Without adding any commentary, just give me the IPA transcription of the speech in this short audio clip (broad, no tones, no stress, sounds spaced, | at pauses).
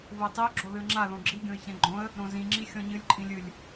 v ʊ ə̯ tˤ i ʊ̯ ɡ͡ǁ o ð ɨ ə̯ ŋ͡ǁ a ð õ ɡ͡ǁ i ɡʲ õ ɪ̯ ç ɛ̃ ɡ͡ǃ õ ə̯ | ɾ õ z ĩ ŋ͡ǁ i xʲ ɔ̃ ɲ ɨ lʲ ǃʼ ĩ lʲ ɨ lʲ